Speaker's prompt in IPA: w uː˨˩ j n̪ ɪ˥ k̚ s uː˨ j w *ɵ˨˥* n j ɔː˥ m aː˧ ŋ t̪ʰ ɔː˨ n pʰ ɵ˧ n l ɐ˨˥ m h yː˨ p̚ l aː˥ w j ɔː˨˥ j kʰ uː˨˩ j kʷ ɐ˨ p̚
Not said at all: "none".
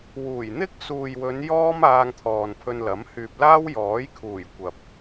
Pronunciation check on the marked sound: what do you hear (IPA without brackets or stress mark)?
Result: ɵ˨˧